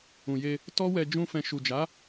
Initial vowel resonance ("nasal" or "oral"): nasal